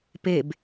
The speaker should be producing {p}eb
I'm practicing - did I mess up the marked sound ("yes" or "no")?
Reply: no